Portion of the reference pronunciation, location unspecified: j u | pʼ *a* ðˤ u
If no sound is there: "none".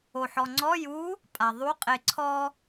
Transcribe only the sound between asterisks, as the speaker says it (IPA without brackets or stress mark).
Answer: a